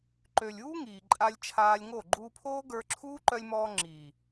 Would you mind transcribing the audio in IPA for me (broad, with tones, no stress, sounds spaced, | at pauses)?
ǃ ø˨ lʲ uː˦ ŋ iː˨ ǃʼ a˧ lʲ t͡ʃʰ aː˧ lʲ ŋ o˦˨ ɡ͡ǃ uː˧ pʰ oː˦ ɡ ə˞˧ ǁʰ uː˦ ǃ œ˧ lʲ m ɔː˧ ŋ͡ǁ iː˨